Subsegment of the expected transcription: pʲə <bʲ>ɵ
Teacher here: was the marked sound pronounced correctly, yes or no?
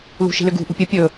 no